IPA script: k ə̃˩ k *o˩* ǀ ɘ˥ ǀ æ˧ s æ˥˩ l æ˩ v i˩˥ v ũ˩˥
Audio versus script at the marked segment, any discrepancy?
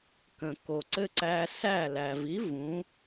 no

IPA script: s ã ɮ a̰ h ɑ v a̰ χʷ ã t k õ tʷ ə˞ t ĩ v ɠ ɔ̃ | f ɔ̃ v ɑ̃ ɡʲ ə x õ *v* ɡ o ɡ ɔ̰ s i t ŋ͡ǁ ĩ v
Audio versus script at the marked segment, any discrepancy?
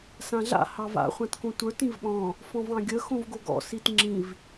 no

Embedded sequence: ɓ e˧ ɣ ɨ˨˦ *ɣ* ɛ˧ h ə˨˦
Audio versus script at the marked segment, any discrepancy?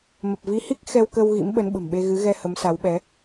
no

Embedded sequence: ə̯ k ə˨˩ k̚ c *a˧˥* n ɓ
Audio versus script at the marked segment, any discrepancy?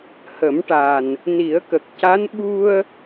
no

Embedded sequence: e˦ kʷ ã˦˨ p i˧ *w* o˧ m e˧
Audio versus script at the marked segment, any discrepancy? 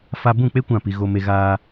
yes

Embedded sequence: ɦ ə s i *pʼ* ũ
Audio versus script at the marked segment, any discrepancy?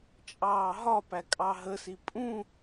no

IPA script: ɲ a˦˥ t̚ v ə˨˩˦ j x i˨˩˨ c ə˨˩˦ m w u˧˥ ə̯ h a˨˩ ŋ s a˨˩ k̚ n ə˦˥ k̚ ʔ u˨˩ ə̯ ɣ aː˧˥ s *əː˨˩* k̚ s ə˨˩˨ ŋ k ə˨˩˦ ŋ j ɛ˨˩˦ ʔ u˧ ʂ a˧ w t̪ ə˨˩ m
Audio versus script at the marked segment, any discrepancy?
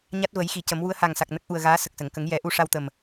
yes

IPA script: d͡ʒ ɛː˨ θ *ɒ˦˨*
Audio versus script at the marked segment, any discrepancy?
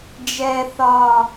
yes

